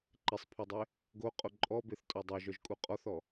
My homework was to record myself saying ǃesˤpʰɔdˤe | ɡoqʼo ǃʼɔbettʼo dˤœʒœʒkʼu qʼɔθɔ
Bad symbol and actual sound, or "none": t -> θ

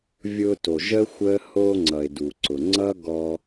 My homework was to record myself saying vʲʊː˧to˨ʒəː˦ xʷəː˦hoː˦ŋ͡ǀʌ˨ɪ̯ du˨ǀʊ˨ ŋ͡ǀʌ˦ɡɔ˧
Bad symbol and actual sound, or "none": none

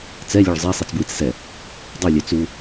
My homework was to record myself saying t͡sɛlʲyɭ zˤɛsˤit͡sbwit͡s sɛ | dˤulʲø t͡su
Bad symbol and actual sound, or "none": y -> ø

